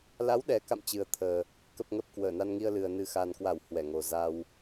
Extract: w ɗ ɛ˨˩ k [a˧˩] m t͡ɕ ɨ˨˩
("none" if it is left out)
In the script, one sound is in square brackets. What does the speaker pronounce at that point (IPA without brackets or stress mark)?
a̰˧˨